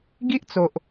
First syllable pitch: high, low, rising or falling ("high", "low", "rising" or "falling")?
high